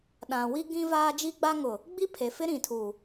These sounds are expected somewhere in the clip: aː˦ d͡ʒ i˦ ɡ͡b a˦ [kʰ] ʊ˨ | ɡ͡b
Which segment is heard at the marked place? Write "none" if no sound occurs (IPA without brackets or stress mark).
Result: ŋ